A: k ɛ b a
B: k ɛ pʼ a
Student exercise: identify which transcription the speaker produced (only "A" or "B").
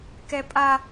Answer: B